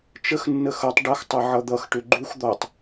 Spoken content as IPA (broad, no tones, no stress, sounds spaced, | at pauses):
t͡ʃ ə x nː ə x ʌ tˤ ɖ ʌ x tˤ ʌ ʕ ʌ d̪ ʌ x ʈ ʏ ɡ͡ǃ u x d̪ ɔ tˤ